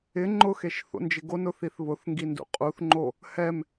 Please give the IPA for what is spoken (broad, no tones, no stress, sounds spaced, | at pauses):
ɪ ŋ͡ǃ ʊ x e ʃ θ o̰ n d͡ʒ ɪ ɡ o n ʊ θ i θ β ʊ θ ŋ ɡ i n d ṵ qʼ u θ ŋ͡ǃ o | h ɛ m